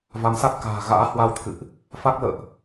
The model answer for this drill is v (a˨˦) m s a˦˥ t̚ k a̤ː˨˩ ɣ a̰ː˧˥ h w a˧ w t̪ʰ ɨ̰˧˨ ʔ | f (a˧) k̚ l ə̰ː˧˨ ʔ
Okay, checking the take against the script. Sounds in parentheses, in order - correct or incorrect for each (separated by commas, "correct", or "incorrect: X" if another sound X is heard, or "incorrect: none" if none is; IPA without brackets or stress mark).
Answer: correct, incorrect: a˦˥